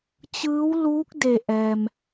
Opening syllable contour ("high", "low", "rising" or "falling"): rising